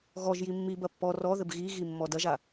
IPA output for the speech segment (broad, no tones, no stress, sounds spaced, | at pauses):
ɣ ɔ ʒ j i mː i b ɐ pː ɔ r ɔ ð ɘ b ɣ i ɣ i mː ɔ d ɐ ʒ a